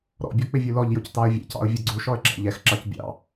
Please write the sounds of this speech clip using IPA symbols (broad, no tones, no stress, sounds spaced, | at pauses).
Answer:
ɾ ɔ̰ bʲ ɔ k͡p ɪ vʲ u l ɔ ʎ j ʊ c t ɑ ə̯ vʲ ɛ̰ c ɑ̰ ʊ̯ vʲ ʌ ɡ͡ǀ u ʃ ɔ ə̯ ɡ͡ǁ ɑ̰ ʎ ɛ x ǁ ɑ c bʲ ɑ̰